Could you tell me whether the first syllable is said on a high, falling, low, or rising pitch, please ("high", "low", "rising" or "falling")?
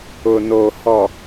low